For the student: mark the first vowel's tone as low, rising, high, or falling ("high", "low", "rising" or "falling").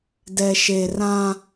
low